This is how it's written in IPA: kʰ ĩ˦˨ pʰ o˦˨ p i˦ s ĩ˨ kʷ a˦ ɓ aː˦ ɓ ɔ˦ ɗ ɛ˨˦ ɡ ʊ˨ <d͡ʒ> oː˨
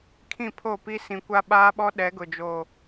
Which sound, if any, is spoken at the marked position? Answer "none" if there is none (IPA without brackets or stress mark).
d͡ʒ